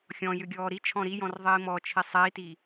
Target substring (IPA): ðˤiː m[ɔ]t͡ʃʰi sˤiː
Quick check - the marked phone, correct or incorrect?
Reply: correct